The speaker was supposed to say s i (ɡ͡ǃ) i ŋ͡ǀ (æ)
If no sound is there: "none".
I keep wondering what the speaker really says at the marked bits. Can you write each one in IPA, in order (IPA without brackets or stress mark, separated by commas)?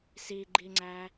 ɡ͡ǃ, æ